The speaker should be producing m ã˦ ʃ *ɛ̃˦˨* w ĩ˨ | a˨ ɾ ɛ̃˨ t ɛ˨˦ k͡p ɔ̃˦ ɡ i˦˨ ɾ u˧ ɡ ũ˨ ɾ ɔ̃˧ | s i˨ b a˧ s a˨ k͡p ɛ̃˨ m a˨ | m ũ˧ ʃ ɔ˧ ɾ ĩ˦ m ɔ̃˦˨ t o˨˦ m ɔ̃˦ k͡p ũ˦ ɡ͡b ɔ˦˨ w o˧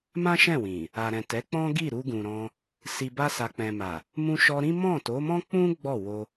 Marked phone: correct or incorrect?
correct